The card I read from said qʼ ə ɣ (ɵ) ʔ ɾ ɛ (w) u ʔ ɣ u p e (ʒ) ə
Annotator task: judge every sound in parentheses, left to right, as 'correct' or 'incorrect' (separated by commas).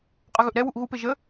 correct, correct, correct